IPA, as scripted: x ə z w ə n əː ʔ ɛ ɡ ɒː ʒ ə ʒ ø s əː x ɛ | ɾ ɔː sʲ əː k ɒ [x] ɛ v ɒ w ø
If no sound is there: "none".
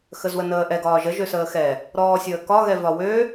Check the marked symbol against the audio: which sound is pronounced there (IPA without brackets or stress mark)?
ɣ